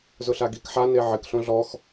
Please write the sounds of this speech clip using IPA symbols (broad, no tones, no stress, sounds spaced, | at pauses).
z ʊ ɬ a ɡ i k ħ a n e ʕ ɪ k ɬ õ ɮ ɔ x